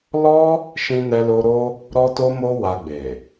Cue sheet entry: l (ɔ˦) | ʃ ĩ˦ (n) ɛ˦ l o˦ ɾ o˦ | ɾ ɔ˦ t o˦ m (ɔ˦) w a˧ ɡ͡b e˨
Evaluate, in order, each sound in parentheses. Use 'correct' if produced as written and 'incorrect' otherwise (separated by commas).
correct, correct, incorrect